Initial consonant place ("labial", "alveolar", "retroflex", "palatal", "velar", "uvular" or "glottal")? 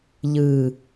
palatal